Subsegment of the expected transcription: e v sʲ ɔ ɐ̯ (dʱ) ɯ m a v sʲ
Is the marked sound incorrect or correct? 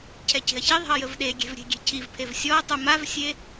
incorrect: tˤ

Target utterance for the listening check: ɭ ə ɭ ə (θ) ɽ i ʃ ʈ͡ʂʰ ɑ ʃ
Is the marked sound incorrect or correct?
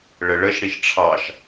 incorrect: ʃ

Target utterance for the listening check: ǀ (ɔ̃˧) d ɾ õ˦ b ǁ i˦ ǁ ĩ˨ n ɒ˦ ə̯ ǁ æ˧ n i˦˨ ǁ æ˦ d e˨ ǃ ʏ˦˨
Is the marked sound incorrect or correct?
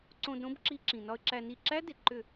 incorrect: õ˧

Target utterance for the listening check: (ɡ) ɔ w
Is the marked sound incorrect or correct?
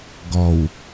correct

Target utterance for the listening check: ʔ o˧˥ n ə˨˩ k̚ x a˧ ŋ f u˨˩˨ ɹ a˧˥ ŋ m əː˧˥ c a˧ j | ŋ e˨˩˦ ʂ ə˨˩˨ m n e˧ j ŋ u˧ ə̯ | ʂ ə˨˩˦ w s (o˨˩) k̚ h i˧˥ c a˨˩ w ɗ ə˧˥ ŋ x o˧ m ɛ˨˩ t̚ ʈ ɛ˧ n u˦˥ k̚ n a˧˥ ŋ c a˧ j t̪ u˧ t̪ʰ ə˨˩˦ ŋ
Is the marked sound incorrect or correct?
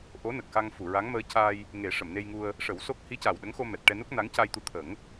incorrect: o˦˥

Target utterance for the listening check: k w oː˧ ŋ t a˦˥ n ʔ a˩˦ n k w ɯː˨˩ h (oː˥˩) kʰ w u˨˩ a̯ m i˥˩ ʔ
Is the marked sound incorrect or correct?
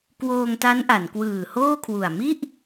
correct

